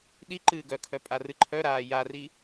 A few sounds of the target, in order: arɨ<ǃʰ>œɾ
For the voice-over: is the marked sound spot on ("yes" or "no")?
yes